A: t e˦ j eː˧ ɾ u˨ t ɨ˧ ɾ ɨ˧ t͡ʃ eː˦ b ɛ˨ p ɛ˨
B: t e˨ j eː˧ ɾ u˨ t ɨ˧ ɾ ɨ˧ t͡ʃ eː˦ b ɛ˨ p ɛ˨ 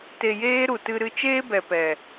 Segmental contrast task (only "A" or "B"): B